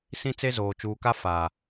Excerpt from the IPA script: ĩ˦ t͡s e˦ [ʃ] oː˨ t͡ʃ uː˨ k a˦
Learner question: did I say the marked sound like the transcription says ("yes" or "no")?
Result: no